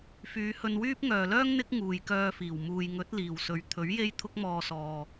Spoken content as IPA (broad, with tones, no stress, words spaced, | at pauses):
fyː˨˧hɵ˧nwyː˥p̚ ŋœː˨lœː˥ŋ n̪ɪ˥k̚ ŋuː˨jkœː˧fiː˨˩w muː˨jŋɵ˨˥t̚ liː˨˩wsɵ˨ɥ t̪ʰɵ˨˥ɥ je˥jt̪ʰʊ˥k̚mɔː˧sɔː˨